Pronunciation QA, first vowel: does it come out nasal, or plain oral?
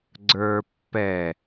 oral